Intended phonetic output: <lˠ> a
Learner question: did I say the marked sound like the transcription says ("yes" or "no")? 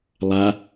yes